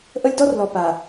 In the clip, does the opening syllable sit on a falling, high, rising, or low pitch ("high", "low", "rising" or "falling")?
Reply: high